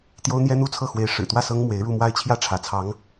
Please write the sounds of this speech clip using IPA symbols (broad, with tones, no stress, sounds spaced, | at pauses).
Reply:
t̪ j o˥ ʊ̯ n̪ j ɛ˥ n̪ u˥ t͡sʰ ɤ˥˩ x w e˧˥ ɪ̯ ʂ ɻ̩˨˩ t̪ w ä˥˩ s ɤ˥ ŋ m w e˧˥ ɪ̯ ɻ u˥˧ m w a˥˧ ɪ̯ t͡ɕʰ j ä˥˩ ʈ͡ʂʰ ä˧˥ t͡sʰ ɑ˧˥ ŋ